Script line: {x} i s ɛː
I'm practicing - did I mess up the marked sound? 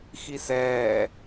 no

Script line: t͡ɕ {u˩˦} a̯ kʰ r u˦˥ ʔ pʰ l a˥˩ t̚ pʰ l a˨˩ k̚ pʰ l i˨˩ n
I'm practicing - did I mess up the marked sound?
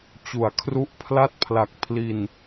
no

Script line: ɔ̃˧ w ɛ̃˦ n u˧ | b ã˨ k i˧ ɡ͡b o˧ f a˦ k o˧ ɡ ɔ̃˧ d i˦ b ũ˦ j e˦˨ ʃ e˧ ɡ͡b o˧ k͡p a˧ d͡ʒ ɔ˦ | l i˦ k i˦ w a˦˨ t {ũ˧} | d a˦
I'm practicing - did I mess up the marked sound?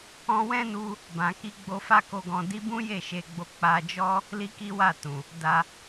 yes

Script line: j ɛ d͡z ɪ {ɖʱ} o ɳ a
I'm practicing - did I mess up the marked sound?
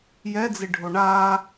no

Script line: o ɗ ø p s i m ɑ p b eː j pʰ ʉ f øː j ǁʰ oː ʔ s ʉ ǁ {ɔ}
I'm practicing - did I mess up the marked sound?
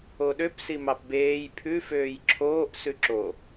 yes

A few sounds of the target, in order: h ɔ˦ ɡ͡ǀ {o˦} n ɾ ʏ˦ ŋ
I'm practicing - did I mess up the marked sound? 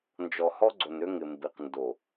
yes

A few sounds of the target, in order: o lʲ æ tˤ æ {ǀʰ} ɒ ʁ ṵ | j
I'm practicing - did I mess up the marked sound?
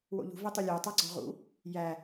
yes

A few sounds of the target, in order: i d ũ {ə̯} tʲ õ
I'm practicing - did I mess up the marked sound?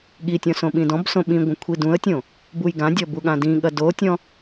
no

